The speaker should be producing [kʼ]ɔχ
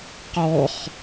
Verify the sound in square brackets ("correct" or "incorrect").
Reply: incorrect